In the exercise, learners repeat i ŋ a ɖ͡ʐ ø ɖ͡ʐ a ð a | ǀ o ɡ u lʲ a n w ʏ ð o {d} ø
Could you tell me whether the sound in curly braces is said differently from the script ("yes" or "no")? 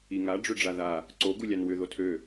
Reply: yes